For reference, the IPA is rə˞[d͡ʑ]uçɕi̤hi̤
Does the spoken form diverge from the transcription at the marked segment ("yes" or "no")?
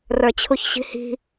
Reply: yes